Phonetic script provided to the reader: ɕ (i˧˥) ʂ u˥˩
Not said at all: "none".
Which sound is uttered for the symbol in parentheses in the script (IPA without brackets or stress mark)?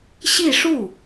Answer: i˥˧